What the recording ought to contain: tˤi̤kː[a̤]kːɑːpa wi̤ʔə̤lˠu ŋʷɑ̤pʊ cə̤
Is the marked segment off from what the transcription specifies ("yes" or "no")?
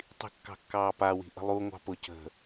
yes